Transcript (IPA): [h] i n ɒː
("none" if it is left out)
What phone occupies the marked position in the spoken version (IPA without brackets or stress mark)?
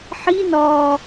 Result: ħ